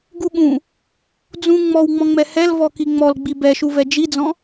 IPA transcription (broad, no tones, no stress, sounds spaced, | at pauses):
ɡ u ɠ ũ | d͡z ũ ŋ͡m ɔ w ŋ͡m ɔ̃ ŋ͡m ɛ h ɛ l v ɔ k i ŋ͡m ɔ l ɡ͡b i b ɛ ʃ u v ɛ d͡ʒ i d͡z ɔ̃